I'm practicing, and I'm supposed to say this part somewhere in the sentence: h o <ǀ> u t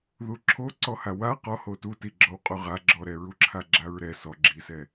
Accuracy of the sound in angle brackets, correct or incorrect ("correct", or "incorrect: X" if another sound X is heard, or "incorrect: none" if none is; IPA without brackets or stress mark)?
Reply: incorrect: t